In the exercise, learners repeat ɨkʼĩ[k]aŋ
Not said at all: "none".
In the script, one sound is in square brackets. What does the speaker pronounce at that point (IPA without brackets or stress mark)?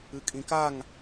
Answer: k